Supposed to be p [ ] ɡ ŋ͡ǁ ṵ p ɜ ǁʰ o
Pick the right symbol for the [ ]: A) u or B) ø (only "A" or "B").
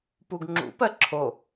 A